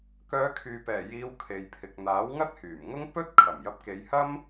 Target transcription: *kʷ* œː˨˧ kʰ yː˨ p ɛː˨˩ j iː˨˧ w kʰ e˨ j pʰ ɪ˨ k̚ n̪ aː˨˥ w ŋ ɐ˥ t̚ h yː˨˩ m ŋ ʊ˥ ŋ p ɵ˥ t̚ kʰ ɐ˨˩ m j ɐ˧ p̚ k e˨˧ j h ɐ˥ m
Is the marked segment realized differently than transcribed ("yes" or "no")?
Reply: yes